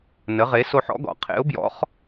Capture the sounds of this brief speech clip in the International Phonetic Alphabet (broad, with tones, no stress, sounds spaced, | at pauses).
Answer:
n ə˨˥ ʁ e˨˥ s o˦ ħ ɔ̰˨˥ ɡ ɔ̰˩˧ qʰ ḛ˨˥ ʊ̯ b j ɔ̰˨˥ χ